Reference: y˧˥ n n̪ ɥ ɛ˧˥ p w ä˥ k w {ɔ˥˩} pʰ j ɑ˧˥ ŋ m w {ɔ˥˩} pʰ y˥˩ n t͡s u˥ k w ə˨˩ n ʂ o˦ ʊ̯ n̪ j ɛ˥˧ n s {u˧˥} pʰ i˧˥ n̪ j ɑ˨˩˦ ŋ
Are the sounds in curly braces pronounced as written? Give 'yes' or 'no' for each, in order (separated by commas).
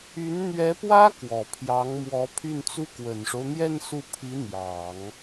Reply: no, no, no